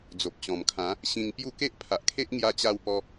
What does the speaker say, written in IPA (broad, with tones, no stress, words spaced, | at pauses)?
d͡zo˨p̚t͡ɕɔ̃˨˩mkʰã˨˦ | ɕĩ˧ŋpju˥˧ ke˦ʔpʰa˨ʔkʰe˦ʔ ŋja˧t͡ɕa˧w pɔ˧